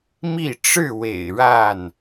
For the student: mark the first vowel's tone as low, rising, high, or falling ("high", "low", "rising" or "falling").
falling